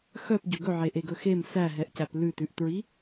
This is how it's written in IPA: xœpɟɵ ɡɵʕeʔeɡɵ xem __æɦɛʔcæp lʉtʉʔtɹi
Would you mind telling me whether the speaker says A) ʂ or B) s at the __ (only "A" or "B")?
B